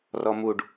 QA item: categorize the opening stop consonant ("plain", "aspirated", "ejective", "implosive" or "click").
plain